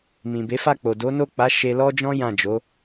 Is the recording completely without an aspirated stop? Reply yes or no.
yes